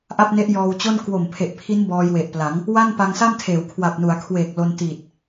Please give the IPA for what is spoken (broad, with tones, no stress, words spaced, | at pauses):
ʔa˥˩p̚ne˦˥ʔ jɔː˧wt͡ɕo˥˩n kwo˨˩mpʰe˨˩ʔpʰi˦˥n bɔː˧jwe˨˩ʔpla˩˦ŋ | wa˥˩npa˧ŋsa˥˩mtʰeː˩˦w kʰwa˨˩p̚nu˩˦a̯kʰweː˨˩k̚ lo˧ntiː˨˩t̚